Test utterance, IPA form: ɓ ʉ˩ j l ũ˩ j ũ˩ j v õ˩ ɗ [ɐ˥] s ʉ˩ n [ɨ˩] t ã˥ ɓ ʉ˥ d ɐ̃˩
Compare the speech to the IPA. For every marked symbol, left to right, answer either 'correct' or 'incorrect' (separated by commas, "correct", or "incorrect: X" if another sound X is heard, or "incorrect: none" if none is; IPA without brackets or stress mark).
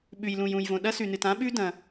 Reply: correct, correct